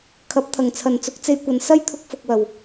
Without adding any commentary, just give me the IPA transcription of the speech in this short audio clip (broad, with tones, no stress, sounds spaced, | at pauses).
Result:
kʰ ɐ˨˥ p̚ t̪ʰ ɐ˨˩ ŋ t͡sʰ ɐ˨˩ n t͡s ʊ˨˥ k̚ t͡s e˧ j kʷ ɐ˨ n s ɐ˥ j t̪ʰ ʊ˧ k̚ f ʊ˨ k̚ w ɐ˨˩ w